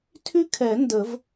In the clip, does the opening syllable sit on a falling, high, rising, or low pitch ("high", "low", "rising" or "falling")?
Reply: high